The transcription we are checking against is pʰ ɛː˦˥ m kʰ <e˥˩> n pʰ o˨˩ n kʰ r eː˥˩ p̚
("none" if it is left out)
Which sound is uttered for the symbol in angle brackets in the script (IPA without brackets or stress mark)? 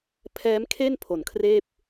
e˥˩